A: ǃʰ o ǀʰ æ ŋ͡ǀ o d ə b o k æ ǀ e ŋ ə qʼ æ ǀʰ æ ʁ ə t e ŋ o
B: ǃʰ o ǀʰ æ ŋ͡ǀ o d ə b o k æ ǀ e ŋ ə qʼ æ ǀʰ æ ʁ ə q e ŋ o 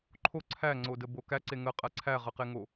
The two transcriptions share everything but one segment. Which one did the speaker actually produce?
B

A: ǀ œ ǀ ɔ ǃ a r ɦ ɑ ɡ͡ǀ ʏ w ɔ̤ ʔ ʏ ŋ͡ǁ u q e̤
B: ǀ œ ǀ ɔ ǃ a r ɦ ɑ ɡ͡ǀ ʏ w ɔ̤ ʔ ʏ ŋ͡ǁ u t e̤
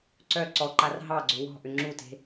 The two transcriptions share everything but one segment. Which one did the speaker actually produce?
B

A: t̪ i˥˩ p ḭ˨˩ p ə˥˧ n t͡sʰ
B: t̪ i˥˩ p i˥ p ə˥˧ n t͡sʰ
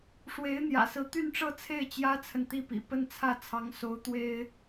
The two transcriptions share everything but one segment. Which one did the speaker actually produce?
A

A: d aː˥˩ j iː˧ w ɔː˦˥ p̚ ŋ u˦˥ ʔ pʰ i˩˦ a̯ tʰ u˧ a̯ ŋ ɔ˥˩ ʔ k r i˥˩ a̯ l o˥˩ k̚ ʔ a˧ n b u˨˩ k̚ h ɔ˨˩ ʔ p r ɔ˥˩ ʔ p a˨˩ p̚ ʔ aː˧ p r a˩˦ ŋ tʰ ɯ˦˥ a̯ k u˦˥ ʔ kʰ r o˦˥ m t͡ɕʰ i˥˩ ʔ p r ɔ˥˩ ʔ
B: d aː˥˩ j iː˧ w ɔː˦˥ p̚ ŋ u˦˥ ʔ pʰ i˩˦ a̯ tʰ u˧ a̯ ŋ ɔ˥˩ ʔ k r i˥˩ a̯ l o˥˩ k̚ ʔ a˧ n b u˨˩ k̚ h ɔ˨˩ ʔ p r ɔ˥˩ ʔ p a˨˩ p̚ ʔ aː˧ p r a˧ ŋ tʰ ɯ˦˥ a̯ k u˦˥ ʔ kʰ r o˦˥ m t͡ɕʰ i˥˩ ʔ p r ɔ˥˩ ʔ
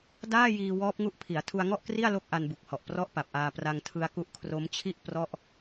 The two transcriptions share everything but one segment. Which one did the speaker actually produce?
B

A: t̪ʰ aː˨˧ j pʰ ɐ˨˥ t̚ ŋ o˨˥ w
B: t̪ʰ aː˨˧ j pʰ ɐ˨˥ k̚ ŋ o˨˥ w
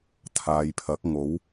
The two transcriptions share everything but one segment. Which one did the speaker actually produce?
B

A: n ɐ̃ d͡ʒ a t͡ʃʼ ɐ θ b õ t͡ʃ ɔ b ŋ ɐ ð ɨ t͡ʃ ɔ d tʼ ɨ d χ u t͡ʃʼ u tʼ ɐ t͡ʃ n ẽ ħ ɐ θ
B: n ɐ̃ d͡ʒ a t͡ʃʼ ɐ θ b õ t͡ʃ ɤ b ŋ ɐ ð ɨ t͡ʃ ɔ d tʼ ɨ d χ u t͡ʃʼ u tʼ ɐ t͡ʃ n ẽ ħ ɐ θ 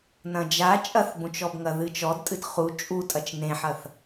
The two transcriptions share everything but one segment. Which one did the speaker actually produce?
A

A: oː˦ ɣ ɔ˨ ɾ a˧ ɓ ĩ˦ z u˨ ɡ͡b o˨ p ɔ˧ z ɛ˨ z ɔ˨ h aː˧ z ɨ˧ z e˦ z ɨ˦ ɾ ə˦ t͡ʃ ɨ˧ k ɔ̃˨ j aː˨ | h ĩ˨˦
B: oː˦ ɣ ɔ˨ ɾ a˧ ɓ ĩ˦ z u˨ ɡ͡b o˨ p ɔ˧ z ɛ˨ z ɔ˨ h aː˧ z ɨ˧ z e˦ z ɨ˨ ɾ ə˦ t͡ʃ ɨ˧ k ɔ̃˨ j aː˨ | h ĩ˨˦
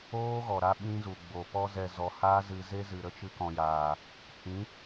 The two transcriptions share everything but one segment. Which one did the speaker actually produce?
B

